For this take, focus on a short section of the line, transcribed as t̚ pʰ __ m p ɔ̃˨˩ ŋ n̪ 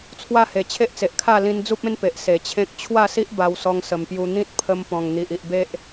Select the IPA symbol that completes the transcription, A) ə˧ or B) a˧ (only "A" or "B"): A